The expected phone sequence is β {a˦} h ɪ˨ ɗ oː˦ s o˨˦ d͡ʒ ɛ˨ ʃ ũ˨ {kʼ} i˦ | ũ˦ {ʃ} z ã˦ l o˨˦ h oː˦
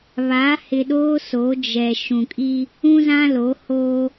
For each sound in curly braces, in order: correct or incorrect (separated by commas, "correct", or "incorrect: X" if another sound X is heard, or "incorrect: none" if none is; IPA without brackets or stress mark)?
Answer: incorrect: a˨˦, correct, incorrect: none